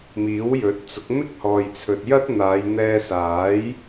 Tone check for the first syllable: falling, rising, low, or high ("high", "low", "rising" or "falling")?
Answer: rising